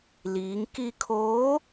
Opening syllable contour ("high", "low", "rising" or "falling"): rising